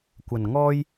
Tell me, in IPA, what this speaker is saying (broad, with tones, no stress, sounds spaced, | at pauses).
kʷ ɐ˨˩ n ŋ ɔː˥ j